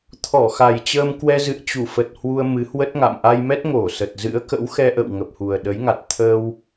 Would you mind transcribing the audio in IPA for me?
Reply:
t̪ʰ ɔ˧˩ x a˨˩ j t͡ɕ əː˧ m k w ɛ˧ z ɨ̰˧˨ ə̯ t͡ɕ u˧˩ f ə˨˩ t̚ h w u˧ ə̯ m ɨ˨˦ h w ə˦˥ t̚ ŋ a̰˧˨ m ʔ a˧ j m ɛ˦˥ t̚ ŋ o˧˩ s ə˨˩ t̚ z ɨ̰˧˥ ə̯ k ə̰˧˥ w x ɛ˧ ʔ ə̰˧˨ w ŋ ə˨˩ p̚ h u˨˩ ə̯ ɗ ə˨˦ j ŋ a˨˩ t̚ t̪ʰ əː˧ w

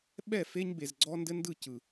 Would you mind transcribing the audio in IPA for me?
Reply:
ɓ ɛ˦˨ f e˦ ɲ b e˨ z ɡ͡ǀ ɔ˦ n d ɘ˦ n d ɯ˦˨ c ɯ˨

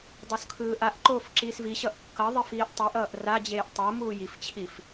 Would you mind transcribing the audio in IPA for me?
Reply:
dˤ o s kʰ ɯː ʔ a ʔ ǃ oː f ǁ iː s v i ɕ ʌ ʔ kː ʌ ðˤ e f iː ʔ tˤ i ʔ ʌː ʔ r a d͡ʑ eː ʔ tˤ o m uː j i f t͡ɕʰ i f

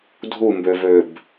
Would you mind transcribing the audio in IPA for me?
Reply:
dʱ u m b ø v ø b

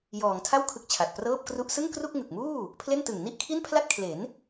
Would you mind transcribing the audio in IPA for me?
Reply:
j ɔː˩˦ ŋ tʰ a˥˩ w kʰ ɯ˥˩ k̚ t͡ɕʰ a˨˩ t̚ p r ɤː˥˩ p̚ k r u˥˩ ʔ s ɯ˥˩ ŋ k r u˥˩ k̚ ŋ ɯ˨˩ k̚ m uː˥˩ | pʰ l e˥˩ n t ɯ˨˩ ŋ n i˥˩ ʔ kʰ i˥˩ n pʰ l a˥˩ t̚ kʰ l e˩˦ n

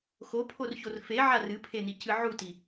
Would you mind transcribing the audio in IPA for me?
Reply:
x o pʰ o r ç o r f e ʕ a r ɨ pʰ e n i c ɨ ʕ u t i

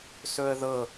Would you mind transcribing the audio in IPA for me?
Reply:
s ɵ ə̯ ð ɤ

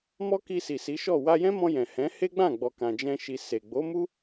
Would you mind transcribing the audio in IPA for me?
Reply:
m ɔ˦ k i˧ s i˨ s i˨˦ ʃ ɔ˦˨ w a˧ j ɛ̃˦ m ɔ̃˧ j ɛ̃˨ h ɛ̃˨˦ h e˦ ɡ͡b ã˦˨ ɡ͡b ɔ˨ k ã˨ d͡ʒ ɛ̃˧ ʃ i˨ s e˨ ɡ͡b o˨˦ m u˦

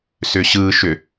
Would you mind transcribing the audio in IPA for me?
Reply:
s ʏ ɕ ɯ ʃ ʏ

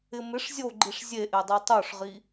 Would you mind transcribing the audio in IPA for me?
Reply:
ɪ m ɪ ʂ zʲ o ɡ͡ǃ i ʂ zʲ e ʔ e dˤ i tˤ o ʂ ʁ i

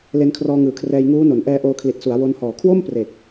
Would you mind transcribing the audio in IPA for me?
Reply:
l e˧ n kʰ r ɔː˧ ŋ ɯː˩˦ kʰ r ɛː˧ j ŋ uː˦˥ n o˩˦ n ʔ ɛː˦˥ ʔ oː˧ kʰ l i˨˩ t̚ s u˩˦ a̯ w o˧ n h ɔː˨˩ kʰ w o˥˩ m p r e˨˩ k̚

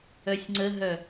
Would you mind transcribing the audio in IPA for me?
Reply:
œ sʲ ŋ͡ǀ ə ɦ œ

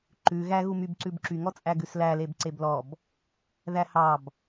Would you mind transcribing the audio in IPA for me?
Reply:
ǃ ʉ ɣ æ ɣ u m y b ǀ ʉ b ǁ y ŋ ɔ t͡sʼ æ ɡ ʉ s l æ l e b ǀ e b l ɔ b | ð æ h ɑ b

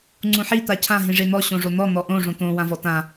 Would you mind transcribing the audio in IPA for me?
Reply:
ŋ͡ǀ ũ ħ i t̪ a cʰ ã ɦ ĩ ʐ e n̪ ɔ ɕ õ ʐ o n̪ ɔ n̪ ɔ ʔ õ ʐ õ t̪ õ w ã v ɔ t ã

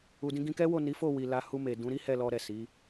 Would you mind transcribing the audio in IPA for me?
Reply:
u˧ d ĩ˦ ɡ ĩ˧ k ɛ˦ w o˦˨ n i˨˦ f o˦˨ w i˨ l a˧ h u˧ m e˨ d ũ˨˦ ɾ i˦ h ɛ˦˨ l ɔ˧ ɾ ɛ˨ s i˨˦

